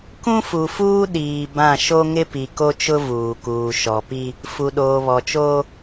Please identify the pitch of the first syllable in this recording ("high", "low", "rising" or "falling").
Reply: high